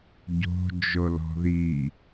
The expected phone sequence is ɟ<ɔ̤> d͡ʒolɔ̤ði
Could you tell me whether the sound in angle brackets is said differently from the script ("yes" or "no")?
yes